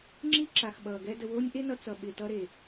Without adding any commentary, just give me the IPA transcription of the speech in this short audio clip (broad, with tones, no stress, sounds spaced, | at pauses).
ŋ͡ǁ i˦ ǁ a˨ x ɓ ʌː˨ ɡ ɛ˦ d ə˧ w o˦ nʲ ʔ e˦ n ʌ˧ t͡s ʌ˨ ɓ ɪ˨ t ʌ˧ ɾ e˨